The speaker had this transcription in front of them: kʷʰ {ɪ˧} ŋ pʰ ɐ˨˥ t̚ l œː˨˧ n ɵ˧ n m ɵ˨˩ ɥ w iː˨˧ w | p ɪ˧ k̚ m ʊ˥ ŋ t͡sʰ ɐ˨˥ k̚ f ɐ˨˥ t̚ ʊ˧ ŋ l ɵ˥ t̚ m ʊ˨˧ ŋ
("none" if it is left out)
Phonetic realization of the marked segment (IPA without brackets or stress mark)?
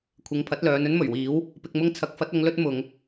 ɪ˨˧